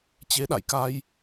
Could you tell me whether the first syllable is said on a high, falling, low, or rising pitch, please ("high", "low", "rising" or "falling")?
rising